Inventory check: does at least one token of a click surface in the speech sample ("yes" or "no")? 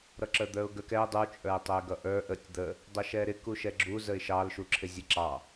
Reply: yes